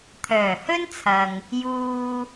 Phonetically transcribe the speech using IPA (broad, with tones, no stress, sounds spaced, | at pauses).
t̪ʰ œː˨˩ h ɵ˥ n t͡sʰ ɐ˨ ŋ | j uː˧